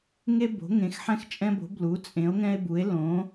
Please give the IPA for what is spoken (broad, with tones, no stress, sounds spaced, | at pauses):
ŋ e˦ b o̤˨˦ ŋ ẽ˨˦ x ħ ɛ̃˦ x t͡ʃʼ ɛ̃˦ b o̤˨˦ b l u˨˦ t͡sʼ ẽ˨˦ o̯ ŋ ɛ̃˦ e̯ b u˨˦ e̯ l õ˨˦